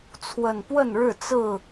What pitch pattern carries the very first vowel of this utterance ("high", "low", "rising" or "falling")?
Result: low